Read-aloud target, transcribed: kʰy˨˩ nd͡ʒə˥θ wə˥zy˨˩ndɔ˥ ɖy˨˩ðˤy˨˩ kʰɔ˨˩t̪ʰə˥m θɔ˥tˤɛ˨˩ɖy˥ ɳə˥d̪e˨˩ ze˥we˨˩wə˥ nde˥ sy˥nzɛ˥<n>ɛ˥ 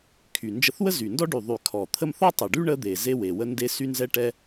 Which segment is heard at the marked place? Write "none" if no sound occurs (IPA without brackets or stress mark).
ʈ